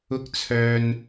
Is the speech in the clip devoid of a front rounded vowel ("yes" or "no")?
no